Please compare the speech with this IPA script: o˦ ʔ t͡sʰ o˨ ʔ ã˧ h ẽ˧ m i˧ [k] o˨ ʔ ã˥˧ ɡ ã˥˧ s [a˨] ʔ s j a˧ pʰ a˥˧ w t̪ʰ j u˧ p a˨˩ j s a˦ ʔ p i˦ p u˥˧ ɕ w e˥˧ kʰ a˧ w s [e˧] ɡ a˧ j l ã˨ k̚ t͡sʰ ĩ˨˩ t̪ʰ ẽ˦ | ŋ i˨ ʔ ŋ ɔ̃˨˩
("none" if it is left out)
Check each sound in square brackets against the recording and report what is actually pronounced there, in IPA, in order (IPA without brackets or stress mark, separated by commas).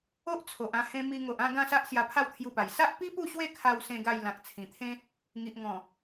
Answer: ŋ, a˦, ẽ˧